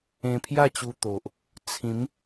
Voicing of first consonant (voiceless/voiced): voiceless